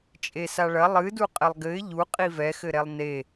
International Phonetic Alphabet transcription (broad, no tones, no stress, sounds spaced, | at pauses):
t͡ʃʼ e s a ɭ ɐ lˠ ɨ d u qʼ ɘ lˠ ɡ ɘ ɪ̯ ʎ u qʼ i v ɛ x ɘ ɾ ɛ lˠ n e